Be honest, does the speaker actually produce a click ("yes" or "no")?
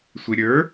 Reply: no